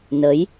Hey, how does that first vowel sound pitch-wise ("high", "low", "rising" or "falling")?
rising